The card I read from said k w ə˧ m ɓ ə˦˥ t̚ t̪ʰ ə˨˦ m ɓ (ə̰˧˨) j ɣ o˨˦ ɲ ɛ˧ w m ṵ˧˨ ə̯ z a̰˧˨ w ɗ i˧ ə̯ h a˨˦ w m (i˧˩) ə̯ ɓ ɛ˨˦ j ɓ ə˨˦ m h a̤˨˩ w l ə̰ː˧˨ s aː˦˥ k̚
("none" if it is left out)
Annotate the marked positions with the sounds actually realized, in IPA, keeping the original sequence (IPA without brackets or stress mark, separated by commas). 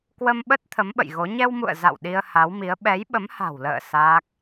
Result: ə̰˧˨, i˨˦